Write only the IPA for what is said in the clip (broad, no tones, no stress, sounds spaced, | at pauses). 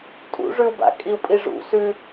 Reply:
tʼ ṵ ʐ ʉ u̯ b a̰ kʼ i u̯ pʼ i ʐ ṵ s ʉ